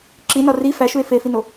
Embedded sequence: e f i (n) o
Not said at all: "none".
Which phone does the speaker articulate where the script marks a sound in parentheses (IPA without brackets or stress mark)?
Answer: n